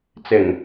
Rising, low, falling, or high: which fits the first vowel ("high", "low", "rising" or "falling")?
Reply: low